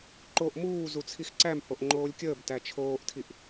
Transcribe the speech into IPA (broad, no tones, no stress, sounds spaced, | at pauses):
ǃ o ʔ m uː z u t͡sʰ i x ǀ æ m h o ʔ ŋ͡ǃ oː lʲ kʲ əː b t æ t͡ʃʰ oː ʔ tʰ i ʔ